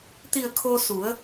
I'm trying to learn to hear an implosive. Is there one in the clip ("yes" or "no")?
no